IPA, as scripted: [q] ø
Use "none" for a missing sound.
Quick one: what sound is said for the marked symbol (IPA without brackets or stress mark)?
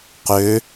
q